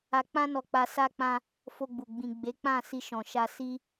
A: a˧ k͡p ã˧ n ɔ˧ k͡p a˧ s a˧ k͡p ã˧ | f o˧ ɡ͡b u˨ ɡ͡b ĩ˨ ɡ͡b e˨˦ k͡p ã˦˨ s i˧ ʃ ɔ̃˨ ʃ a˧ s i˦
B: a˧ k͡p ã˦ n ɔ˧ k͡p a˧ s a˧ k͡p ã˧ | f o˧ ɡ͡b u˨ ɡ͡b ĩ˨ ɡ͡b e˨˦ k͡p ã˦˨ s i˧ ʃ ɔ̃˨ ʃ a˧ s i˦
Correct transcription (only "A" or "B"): B